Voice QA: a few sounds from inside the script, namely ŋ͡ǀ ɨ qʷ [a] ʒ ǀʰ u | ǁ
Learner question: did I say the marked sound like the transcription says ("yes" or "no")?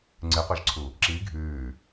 yes